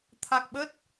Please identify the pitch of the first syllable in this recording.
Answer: low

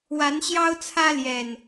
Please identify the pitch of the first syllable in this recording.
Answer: rising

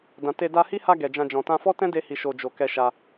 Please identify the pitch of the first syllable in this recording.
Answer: low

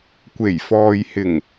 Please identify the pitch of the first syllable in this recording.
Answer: low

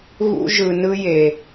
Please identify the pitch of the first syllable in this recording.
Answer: high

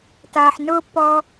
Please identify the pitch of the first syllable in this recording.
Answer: low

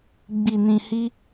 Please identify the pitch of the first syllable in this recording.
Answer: low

